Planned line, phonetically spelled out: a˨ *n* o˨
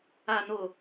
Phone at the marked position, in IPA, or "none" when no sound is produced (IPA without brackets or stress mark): n